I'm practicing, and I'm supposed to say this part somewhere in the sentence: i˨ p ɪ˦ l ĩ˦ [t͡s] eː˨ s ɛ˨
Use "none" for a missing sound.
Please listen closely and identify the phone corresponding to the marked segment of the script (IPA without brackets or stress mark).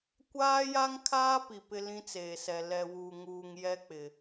t͡s